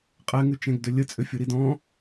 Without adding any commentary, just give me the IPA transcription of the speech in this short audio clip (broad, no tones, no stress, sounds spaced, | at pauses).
qʼ ɛ ŋ ʉ t͡ʃ ɛ̃ ɡ d ʏ lʲ ə t͡sʼ ʏ fʲ o ɾ i d ɔ̃